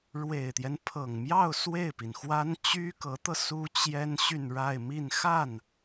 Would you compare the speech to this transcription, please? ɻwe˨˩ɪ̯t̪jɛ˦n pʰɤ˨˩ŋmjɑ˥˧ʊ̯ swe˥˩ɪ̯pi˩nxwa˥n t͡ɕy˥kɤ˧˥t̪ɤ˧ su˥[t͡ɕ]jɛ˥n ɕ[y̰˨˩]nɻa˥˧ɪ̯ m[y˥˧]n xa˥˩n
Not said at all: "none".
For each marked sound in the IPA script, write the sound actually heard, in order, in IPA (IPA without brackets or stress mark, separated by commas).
t͡ɕ, y˥˧, i˥˧